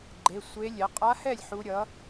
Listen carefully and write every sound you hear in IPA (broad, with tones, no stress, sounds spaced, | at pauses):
ɡ͡ǃ e˩˧˩ sʷ e˧˥ lʲ ɛ˩˥ qʼ a˧˥ h ɛ˥˩ lʲ ħ u˧˥ ɾʲ ʌ˩˥